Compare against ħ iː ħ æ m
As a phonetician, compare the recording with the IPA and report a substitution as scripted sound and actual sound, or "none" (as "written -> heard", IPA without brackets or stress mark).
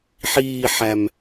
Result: none